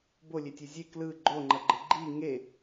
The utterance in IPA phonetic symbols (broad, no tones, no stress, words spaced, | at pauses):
bolʲetʲe zʲe klɯ ɡ͡ǃoŋ͡ǃʌɡ͡ǃɯ ɡ͡ǃi ŋe